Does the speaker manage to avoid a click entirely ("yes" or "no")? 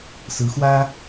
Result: yes